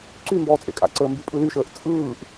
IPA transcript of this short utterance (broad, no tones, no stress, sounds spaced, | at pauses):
ǀ y m b ɔː t͡sʼ ḛ kʼ a̰ ǀ əː m b y pʼ ɯ l y ʃ əː ʔ t͡sʼ ɯː ʔ